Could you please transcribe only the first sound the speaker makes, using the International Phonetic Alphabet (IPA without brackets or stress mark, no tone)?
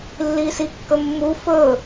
lː